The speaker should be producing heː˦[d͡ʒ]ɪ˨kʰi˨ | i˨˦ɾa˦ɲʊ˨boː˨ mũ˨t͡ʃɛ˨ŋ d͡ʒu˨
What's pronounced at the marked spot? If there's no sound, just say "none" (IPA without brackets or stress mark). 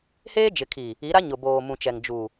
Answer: d͡ʒ